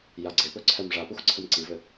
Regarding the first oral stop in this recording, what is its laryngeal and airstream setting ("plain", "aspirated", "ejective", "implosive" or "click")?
click